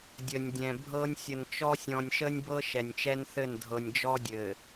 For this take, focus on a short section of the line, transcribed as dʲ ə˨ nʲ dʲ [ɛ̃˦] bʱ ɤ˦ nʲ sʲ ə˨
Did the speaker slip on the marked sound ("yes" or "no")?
yes